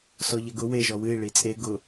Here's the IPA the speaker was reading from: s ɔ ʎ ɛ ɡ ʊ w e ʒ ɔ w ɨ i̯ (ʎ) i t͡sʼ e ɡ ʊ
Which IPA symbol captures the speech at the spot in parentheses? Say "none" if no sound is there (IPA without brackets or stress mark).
ɭ